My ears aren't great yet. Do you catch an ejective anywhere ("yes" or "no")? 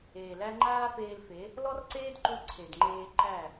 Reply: no